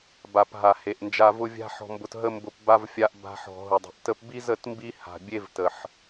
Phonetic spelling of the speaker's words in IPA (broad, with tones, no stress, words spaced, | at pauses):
ba˨pɦa˨ he˨ʔnd͡ʒa˧vʊ˦ vʲa̤˦ħɔ̤˧mbʊ˧t ɦə˦mbʊ˧pba˦v fʲa˧ʔ ba̤˧ħɔ̤˨ ɦʊ˨dˤi̤˨ʔ tə˧pbi˦zə˦˨t mbi˦ha̤˨ bʲe˦vtə˨ħ